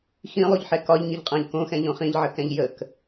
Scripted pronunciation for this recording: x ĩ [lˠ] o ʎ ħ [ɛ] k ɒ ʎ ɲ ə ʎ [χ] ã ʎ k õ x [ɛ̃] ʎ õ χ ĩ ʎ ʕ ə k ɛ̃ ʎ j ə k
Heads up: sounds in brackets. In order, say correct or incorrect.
correct, correct, incorrect, correct

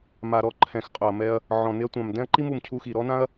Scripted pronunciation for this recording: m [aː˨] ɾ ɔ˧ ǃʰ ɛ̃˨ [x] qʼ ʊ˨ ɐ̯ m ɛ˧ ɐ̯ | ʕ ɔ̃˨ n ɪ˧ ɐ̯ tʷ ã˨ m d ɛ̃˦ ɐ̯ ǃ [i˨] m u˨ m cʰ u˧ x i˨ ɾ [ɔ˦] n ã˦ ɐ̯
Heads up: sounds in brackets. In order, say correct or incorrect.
incorrect, correct, incorrect, correct

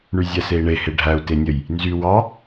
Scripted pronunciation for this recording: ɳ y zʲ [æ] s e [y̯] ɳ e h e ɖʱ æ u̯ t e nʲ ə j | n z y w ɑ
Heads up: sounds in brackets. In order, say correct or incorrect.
correct, incorrect

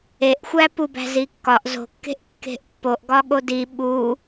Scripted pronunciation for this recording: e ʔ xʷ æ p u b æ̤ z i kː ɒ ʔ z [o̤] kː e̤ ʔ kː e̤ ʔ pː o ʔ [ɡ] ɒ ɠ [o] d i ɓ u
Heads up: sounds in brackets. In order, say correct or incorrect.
correct, correct, correct

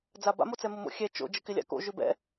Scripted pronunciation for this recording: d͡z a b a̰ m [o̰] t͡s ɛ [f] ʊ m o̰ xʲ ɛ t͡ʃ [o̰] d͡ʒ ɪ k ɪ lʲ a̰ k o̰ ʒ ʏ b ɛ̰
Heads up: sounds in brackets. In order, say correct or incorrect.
incorrect, incorrect, correct

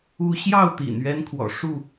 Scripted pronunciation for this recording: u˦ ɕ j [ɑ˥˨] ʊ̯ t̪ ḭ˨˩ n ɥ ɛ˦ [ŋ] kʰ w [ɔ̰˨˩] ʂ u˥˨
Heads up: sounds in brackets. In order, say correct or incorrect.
correct, incorrect, correct

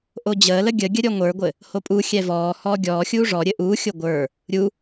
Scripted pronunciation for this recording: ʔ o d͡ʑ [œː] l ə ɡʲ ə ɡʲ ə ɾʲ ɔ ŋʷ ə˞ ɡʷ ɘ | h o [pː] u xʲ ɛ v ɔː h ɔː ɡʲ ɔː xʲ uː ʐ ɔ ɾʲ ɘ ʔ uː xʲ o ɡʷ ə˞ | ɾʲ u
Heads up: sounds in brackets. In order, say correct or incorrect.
incorrect, incorrect

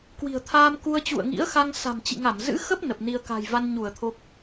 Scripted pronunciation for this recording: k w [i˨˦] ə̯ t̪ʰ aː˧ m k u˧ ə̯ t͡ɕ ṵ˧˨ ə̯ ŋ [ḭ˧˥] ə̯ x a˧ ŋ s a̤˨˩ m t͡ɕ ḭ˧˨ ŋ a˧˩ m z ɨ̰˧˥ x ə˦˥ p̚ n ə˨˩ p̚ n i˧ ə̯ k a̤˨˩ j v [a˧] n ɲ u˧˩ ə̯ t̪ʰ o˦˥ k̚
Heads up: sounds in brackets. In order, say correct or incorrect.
incorrect, correct, correct

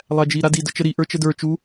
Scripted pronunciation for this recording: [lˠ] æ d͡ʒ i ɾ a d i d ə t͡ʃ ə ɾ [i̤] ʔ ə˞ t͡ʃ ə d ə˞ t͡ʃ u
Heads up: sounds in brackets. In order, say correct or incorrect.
correct, incorrect

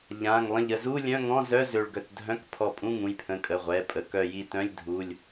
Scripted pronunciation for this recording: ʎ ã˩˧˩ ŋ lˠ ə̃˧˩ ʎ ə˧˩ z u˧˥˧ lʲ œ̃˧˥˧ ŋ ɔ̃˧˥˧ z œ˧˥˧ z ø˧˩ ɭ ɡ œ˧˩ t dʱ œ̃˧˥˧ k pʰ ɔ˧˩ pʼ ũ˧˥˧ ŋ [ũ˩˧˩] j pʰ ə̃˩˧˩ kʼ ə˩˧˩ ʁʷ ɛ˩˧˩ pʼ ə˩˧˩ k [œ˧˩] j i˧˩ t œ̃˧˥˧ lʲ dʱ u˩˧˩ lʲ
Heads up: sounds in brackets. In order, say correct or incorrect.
correct, correct

